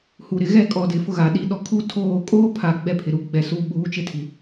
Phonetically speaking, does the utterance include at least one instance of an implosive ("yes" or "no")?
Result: yes